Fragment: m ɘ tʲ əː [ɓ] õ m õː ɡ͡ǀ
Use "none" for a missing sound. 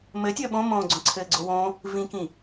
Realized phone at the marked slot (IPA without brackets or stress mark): ɓ